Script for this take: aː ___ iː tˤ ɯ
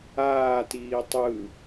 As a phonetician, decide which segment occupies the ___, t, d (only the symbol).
t